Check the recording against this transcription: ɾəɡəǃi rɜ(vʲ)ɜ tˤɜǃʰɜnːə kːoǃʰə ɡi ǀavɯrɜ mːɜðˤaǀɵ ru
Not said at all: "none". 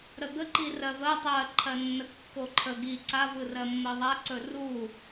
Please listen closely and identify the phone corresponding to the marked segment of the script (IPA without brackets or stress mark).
v